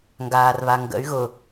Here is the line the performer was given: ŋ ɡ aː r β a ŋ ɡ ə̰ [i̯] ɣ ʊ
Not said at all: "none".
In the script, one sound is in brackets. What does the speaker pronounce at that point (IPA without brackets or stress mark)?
y̯